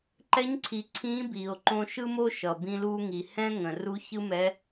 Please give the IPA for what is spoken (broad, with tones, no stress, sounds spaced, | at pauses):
ǃ ɛ˧˥ ɲ ǀʰ i˩˧ ǀʰ ĩː˧˥ b iː˩ o̯ ǃ õ˧ ʃ ɯ˥ m o˥ ʃ ʌ˩ b ĩ˧ l uː˧ ŋ i˩ h ɛ̃˥ ŋ ə̃˩ r u˧˥ ç ɯ˥ m ɛ˧˥